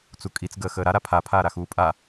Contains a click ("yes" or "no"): no